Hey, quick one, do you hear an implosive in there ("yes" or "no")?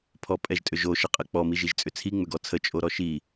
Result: no